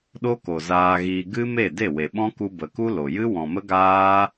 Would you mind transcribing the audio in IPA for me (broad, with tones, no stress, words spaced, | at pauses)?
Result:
ɗo˦ko˨ zaː˧ɣiː˧ ɡɨ˦ me˦˨de˦˨we˨ɓɔ̃˦ ku˧ bə˨ku˦ lo˨jɨ˦ wɔ̃˨mə˦ ɡaː˦